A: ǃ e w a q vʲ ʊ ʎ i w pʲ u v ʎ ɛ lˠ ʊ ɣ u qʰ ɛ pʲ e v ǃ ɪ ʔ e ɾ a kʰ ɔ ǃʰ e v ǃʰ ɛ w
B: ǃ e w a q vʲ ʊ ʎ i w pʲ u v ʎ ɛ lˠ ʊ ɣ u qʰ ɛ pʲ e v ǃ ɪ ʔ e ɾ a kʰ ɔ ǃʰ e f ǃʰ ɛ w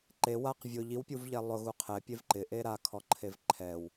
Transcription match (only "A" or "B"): A